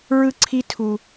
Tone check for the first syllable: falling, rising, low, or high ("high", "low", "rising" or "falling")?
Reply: high